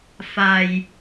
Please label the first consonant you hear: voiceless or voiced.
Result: voiceless